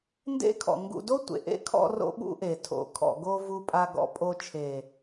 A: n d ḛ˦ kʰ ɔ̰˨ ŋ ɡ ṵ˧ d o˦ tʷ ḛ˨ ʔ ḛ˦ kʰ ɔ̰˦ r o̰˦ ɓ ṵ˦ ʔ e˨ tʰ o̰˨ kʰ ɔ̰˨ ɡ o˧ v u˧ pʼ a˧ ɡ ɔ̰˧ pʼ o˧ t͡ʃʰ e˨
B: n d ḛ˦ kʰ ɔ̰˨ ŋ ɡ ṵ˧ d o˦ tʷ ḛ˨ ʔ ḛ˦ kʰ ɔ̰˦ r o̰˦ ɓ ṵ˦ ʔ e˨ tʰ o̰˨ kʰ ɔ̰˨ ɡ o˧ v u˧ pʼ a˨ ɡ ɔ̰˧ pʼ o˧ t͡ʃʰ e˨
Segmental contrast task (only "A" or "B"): A